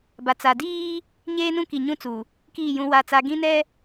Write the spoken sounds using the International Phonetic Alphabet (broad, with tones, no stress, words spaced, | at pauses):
ba˨t͡sa˨ diː˦ | ɲeː˦ nũ˦ki˨ɲũ˦t͡su˨ | kiː˦˨jũ˦wa˦˨t͡sa˦ ɡĩ˦nɛ˦